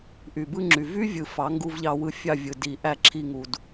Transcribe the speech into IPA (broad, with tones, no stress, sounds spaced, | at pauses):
ʔ y˨ b ɯ˧ ŋ͡ǁ y˨ v y˦ vʲ ɯ˨ f ɑ˨˦ ŋ ɡ u˧ v ʎ ɑ˧ w ɯ˧ fʲ ɑ˦˨ vʲ ɯ˨ d i˨ ʔ æ˦˨ ǁʰ i˧ ŋ u˨ d